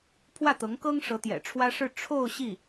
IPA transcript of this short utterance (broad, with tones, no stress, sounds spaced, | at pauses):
pʰ w ä˥˩ t̪ ɤ˧˥ ŋ k ɤ˥ ŋ ʂ ɤ˧˥ t̪ j ɛ̰˨˩ ʈ͡ʂʰ w ä˥ ʂ ɻ̩˥˧ ʈ͡ʂʰ o˥˧ ʊ̯ ɕ i˥˩